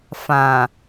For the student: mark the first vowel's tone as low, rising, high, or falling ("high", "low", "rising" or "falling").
low